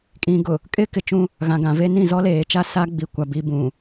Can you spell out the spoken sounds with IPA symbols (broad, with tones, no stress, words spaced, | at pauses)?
kʼĩ˨ɡʊ˨ | kʼɪ˦ kɪ˨t͡ʃũ˦ | ɣã˨ɡã˨ ve˦nĩ˦˨ zɔ˦leː˨t͡ʃa˦ sa˦ɡ͡bi˨ kʷa˨ bi˨bũ˨